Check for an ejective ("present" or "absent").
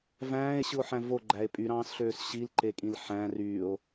present